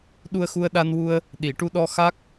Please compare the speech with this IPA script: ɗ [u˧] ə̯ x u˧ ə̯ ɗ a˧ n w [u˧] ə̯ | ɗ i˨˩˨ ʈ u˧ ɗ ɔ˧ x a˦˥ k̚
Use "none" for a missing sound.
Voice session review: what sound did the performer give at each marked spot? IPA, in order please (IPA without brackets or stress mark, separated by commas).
u˧, u˧